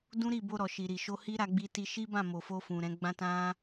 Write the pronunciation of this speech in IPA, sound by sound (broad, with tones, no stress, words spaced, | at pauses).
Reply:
dũ˦ɾi˦˨bo˧ ɾɔ˨ʃi˨ɾi˨ ʃo˧hi˦ ɾa˧ɡ͡bi˧ti˧ ʃi˦bã˦˨ mo˨fo˧fũ˨ ɾɛ̃˨˦ɡ͡bã˦tã˦